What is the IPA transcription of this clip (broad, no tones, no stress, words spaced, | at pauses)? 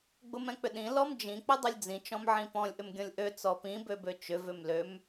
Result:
ɡ͡bʊmɛ̃k͡pʏɗĩ lɔmd͡ʒĩ k͡pʏdˤʊlʲd͡zĩ t͡ʃɔ̃mʕĩpɔ̃lʲ ʔʏmɡʲɔ̃lʲʔø t͡sɔpĩ bøbøt͡ʃʏ vʏmløm